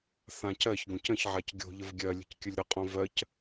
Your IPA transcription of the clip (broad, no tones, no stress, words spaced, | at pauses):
θãcɜçɡõc ə̃çʕac ɡʲo̤ ʎəvɡʲɜlʲə̤c kʲəlʲɾəqʼõ vɜc